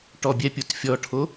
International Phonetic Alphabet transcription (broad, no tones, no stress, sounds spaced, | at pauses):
ʈ ɔ bʲ ɛ pʲ o t fʲ ɔ ʈʰ o